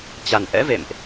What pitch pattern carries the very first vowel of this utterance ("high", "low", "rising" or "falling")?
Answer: low